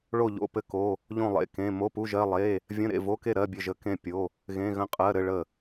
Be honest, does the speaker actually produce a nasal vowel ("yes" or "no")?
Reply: yes